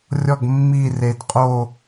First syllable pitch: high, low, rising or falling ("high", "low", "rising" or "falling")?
falling